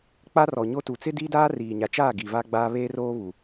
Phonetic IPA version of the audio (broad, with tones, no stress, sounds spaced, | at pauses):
k͡p a˦ r ɔ˨ ɲ o˦ t u˨ t͡s ɪ˦ d iː˦ d aː˦ r iː˨ ɲ a˨ t͡ʃ aː˦˨ ɡ i˨ v a˦ ɡ͡b aː˦ β eː˦ r oː˦ β u˨